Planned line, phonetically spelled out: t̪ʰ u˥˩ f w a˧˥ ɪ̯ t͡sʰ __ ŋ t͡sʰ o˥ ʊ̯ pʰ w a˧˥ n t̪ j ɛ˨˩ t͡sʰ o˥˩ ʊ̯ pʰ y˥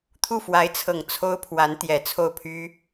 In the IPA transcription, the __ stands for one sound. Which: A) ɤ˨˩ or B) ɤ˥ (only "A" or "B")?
A